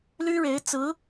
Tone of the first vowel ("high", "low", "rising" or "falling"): high